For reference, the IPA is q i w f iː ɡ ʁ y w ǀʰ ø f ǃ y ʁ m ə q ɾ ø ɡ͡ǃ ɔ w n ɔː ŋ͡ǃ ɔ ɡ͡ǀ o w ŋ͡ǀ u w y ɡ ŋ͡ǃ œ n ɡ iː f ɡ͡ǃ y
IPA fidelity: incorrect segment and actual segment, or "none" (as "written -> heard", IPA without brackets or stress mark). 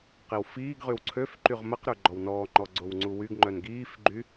none